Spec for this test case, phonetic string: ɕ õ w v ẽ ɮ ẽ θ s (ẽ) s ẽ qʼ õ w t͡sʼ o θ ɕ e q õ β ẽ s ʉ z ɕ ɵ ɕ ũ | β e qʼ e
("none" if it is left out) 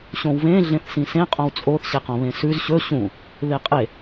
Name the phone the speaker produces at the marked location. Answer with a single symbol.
ĩ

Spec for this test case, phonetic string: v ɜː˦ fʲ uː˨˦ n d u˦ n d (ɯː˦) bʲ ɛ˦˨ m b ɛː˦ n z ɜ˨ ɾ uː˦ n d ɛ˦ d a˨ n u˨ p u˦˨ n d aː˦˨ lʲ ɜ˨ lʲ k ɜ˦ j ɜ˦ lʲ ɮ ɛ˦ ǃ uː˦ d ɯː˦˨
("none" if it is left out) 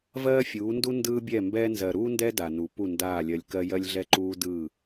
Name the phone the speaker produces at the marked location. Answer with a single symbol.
ɯː˦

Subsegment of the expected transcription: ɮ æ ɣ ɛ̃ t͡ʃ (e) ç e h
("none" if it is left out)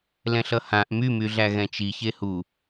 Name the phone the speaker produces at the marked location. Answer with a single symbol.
i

